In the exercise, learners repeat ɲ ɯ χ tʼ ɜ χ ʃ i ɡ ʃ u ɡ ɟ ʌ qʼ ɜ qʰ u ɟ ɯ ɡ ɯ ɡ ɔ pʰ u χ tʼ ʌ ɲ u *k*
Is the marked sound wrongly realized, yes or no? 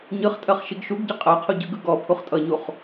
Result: yes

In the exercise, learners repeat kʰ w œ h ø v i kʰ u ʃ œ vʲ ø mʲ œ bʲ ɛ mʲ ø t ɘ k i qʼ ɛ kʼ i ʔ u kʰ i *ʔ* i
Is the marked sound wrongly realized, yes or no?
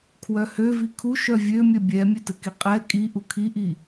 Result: no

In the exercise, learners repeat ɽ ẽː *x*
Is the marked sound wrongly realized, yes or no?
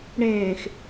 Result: no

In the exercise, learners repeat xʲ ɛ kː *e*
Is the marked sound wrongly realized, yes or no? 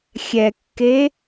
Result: no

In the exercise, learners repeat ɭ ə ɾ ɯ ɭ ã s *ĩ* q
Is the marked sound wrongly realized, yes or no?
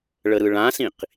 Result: no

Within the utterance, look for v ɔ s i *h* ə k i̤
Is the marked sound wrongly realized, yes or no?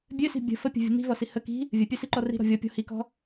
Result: no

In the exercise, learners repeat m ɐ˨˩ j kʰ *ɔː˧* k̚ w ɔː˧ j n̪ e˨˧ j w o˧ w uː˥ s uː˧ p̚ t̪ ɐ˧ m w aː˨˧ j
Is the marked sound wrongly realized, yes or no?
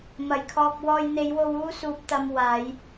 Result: no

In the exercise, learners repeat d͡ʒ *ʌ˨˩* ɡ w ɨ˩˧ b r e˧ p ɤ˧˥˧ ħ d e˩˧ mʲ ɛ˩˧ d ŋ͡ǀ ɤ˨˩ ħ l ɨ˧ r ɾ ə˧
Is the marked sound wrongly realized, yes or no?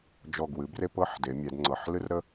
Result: yes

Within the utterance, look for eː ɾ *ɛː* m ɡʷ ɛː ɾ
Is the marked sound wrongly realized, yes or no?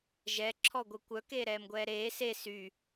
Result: no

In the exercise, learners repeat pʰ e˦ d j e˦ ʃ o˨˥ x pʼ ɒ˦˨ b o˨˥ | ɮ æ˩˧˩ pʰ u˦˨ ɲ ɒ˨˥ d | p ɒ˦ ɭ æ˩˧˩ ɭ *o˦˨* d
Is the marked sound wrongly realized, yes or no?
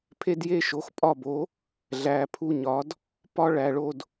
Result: no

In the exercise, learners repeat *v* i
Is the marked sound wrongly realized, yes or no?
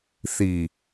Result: yes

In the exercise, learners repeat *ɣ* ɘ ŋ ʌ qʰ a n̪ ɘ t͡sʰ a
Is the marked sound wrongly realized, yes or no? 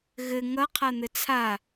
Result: no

